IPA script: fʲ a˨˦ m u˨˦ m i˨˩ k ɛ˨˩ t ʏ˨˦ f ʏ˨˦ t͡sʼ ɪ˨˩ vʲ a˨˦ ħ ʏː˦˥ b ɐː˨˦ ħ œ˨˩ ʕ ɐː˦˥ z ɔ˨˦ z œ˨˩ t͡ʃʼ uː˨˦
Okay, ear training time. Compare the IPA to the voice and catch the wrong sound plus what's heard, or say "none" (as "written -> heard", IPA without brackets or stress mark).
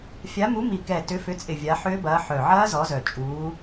none